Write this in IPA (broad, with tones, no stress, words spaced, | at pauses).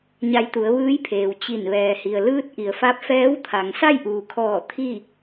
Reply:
ɲa˧jt̪u˩˧ə̯ ʋɯː˧˥jpʰeː˩w t͡ɕi˧˩n ʋɛː˩hi˩ə̯ lɯː˧t̚ ʔi˩ə̯fa˧˥p̚ fɛː˧˥wt̪ʰa˩ŋ sa˥˨jʔuː˩kʰɔː˧˩ t̪ʰi˥˨